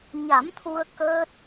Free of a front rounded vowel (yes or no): yes